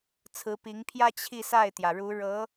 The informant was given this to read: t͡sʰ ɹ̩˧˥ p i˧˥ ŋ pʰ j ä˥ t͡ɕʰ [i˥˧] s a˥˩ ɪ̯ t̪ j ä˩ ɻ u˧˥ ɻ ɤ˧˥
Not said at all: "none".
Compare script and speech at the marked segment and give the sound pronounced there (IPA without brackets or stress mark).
i˥˧